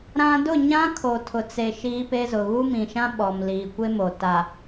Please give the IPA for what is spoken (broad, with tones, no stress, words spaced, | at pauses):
ɾã˦ dʊ˦˨ɲã˦kʰo˨ tʰʊ˨t͡se˨ ʃiː˦pe˦zʊ˨ ɣu˦mĩ˨ʃã˦ ɓɔ˨m liː˨kʷe˦mo˨ ta˨